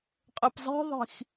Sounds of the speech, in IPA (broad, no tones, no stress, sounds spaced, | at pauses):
qʼ ɘ p zˤ i̤ ðˤ i̤ x